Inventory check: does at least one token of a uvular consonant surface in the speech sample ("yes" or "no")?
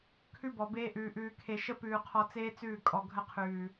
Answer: yes